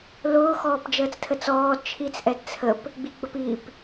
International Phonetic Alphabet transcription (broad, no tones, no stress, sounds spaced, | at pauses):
l ʊː x ɔː p d͡ʒ əː t͡s tʰ ə t͡s ɔː d t͡ʃʰ i t͡s ʔ ɛ d t͡sʰ ə p | ɡ͡b i ɡ͡b ə p i p